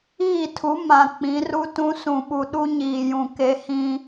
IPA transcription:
iː˦˨ tʰ u˨˦ m ã˨ k͡p ĩ˨˦ r u˦ t ũ˦ s ũ˨ ɓ u˨ ɗ u˦ ɲ iː˨ j ũ˨ k e˦ h ĩ˦

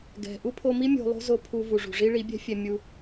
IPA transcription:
ɡ ɛ̤˨ ʔ u˦ pʰ o˧ m i˦ mʲ o̤˧ lˠ o̤˦ z o˧ pʰ u˧ v u˨ ʐ ṳ˨ ʐ i˦ ɭ i˨˦ bʲ ɛ̤˦ fʲ ɛ˧ mʲ u˧

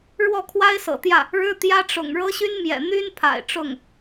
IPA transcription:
ɻ w ɔ˥˩ kʰ w a˥ ɪ̯ s ɤ̰˨˩ t̪ j ä˥˩ | ɻ ɻ̩˥ t̪ j ä˥ ʈ͡ʂ ʊ̰˨˩ ŋ ɻ ɤ˥ ɕ y˥ n m j ɛ̰˨˩ n̪ y˥ n pʰ a̰˨˩ ɪ̯ ʈ͡ʂ ʊ˥˩ ŋ

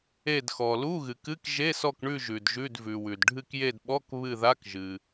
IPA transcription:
e˦˨ d x ɔ˨ l u˧˥˧ ɣ ɨ˨ k ɨ˧˥˧ k ʒ e˧˥˧ s ɔ˦˨ k ɳ ʉ˦˨ ʒ ʉ˨ d ʒ ʉ˧˥˧ d v ʉ˨ w ʉ˨ d ɖʱ ɨ˦˨ k j e˦˨ d ɓ ɔ˧˥˧ k β ɨ˦˨ ð a˧˥˧ k ʒ ɨ˨

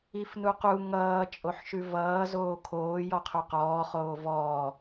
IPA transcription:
i f n u q u ŋ ʌː t͡ʃʼ o ħ ʃ ʉ v ʌː z oː kʰ oː j ɔ qʰ ʉ q ɔː χ oː v ɔː

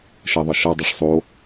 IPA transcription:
ʃ ɛ ðˤ ʌ ʃ ʌ dˤ o ʂ sˤ o

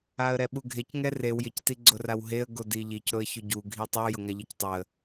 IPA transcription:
a ə̯ ɾ ɛ ɓ u ɡʱ e c ŋ ɛ r e w j ɪ c t i ɡ͡ǀ ʊ r a w ɦ e ə̯ ɡ o d i ʎ i c ɾ ʊ ə̯ ç ʊ ɟ u ɡʱ i tˤ u j ʊ ŋ a ʎ i c tˤ ʊ ə̯

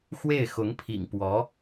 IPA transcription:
x w e˥˩ ɪ̯ x ʊ˧˥ ŋ pʰ ḭ˨˩ ŋ p w ɔ˧˥

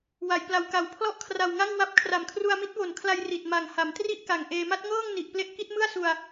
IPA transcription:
w a˩˦ j p l a˩˦ w k a˨˩ w pʰ l ɔ˥˩ ʔ kʰ r a˨˩ w ŋ a˥˩ ŋ w a˦˥ p̚ kʰ r a˨˩ m kʰ r u˧ a̯ m i˦˥ t̚ w o˨˩ n kʰ l a˧ j r i˨˩ t̚ m a˨˩ ŋ h a˩˦ m t r i˥˩ ʔ k a˨˩ ŋ ʔ eː˧ m a˦˥ t̚ ŋ ɤː˥˩ ŋ n i˨˩ ʔ p l e˦˥ ʔ k i˦˥ t̚ m ɯ˥˩ a̯ s u˧ a̯

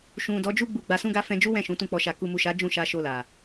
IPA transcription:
ʃ ũ˨ d ɔ˨˦ d͡ʒ u˦ ɡ͡b u˦˨ ɡ͡b a˧ s ũ˦ ɡ a˦ f ɛ̃˧ d͡ʒ u˦ w ɛ̃˦˨ ʃ ũ˨˦ t ũ˦˨ k͡p ɔ˧ ʃ a˧ k u˨ m u˨ ʃ a˨˦ d͡ʒ ũ˦˨ ʃ a˧ ʃ o˧ l a˨

